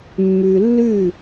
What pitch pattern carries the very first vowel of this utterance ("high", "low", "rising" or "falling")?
low